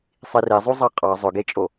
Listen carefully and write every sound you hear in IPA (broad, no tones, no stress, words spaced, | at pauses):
sˤirezˤu zˤɑqʼɑ zˤɵɡet͡ʃʼo